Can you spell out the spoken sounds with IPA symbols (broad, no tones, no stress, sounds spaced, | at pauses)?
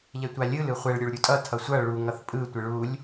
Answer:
ʎ ɛ tʷ a lʲ ɯ l ɯ χʷ ɛ ɭ ɾʲ u ɭ ɾʲ u tʼ ʌ tʰ ʌ sʷ ʌ ɭ u ŋ ʌ θ pʼ ɯ tʷ ɯ ɭ u lʲ